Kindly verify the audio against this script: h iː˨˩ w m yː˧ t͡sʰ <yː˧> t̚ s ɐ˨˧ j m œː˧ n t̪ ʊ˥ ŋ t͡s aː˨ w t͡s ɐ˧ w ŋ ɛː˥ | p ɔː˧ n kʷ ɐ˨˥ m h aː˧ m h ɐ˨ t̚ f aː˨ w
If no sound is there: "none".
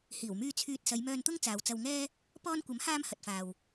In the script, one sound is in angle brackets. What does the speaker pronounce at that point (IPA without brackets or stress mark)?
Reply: yː˧